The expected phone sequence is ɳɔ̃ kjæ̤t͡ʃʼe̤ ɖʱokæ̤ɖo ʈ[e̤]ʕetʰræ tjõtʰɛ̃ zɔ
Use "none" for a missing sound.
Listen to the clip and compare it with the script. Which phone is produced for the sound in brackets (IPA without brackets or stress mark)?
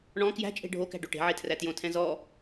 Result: e̤